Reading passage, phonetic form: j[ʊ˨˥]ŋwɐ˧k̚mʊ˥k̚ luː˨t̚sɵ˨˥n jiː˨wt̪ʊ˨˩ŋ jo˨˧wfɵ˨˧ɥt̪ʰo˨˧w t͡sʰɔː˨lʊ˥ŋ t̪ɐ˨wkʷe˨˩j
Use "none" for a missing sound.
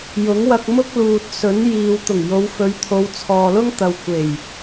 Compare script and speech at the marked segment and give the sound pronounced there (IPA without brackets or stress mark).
ʊ˨˥